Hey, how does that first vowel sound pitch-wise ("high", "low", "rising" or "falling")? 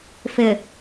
low